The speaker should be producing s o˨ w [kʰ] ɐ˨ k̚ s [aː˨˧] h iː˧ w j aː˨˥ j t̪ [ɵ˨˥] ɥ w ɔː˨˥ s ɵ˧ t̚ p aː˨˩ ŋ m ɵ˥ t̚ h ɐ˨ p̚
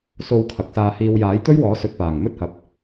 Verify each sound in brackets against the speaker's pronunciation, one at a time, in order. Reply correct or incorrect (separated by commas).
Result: correct, incorrect, incorrect